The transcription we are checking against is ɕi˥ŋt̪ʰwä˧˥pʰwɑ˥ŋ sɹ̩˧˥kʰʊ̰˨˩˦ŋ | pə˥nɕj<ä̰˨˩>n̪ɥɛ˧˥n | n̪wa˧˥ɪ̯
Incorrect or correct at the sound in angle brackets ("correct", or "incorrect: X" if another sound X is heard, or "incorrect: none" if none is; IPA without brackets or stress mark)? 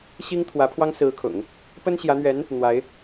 incorrect: ä˧˥